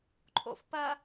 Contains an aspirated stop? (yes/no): yes